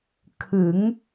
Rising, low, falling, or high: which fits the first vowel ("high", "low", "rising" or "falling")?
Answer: rising